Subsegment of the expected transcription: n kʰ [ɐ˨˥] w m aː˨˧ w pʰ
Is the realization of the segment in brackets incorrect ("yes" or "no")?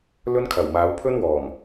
yes